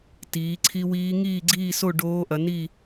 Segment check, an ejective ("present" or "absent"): absent